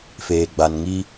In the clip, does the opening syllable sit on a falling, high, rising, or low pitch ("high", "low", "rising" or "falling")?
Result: low